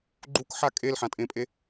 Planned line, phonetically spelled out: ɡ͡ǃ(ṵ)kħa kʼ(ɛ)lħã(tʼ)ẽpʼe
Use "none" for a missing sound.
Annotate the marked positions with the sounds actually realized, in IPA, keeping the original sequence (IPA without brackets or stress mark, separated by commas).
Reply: u, e, tʼ